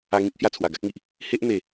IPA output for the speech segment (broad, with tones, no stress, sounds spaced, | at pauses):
a˧ ŋ ĩ˦ k̚ h j a˧ t͡sʰ w a˨˩ ɡ a˦ k̚ ŋ i˨ ʔ | h e˦ ʔ n̪ e˨˩